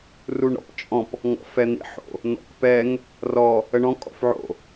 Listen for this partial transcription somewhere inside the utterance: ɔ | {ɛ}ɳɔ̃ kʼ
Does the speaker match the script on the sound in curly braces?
no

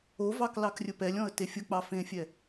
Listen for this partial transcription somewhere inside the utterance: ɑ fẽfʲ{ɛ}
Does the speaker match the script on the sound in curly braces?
yes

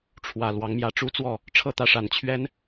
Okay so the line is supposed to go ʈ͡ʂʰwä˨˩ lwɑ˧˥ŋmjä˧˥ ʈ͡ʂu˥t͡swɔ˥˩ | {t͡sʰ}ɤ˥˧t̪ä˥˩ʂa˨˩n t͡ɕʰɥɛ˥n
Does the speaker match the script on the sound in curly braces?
no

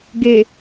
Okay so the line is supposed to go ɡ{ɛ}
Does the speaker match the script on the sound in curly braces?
no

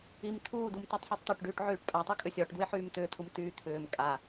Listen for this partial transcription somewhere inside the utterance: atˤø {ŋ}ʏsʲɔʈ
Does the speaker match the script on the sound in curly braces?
no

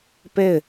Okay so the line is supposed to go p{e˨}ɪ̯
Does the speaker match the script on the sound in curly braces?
no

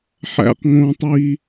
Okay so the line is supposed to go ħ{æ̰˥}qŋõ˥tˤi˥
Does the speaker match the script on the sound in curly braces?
yes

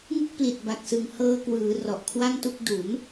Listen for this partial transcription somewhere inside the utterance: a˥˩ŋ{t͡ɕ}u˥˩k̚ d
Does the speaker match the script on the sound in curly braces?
no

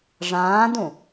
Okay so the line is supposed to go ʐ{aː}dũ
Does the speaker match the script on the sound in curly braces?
no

